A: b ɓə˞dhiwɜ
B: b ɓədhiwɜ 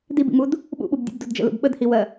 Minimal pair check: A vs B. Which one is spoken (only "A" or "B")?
B